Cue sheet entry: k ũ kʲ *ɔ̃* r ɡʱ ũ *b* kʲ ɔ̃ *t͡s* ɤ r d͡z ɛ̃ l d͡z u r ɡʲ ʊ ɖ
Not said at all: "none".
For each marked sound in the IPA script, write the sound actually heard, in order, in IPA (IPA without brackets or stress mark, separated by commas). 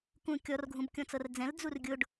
ɔ, b, t͡s